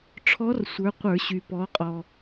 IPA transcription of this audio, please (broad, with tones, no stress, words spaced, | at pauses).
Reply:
ʈ͡ʂʰɔ˧˥rsʷə˞˩˧ qʷə˞˧˩˧ɕy˩ pɔ˩˧ qʼɔ˩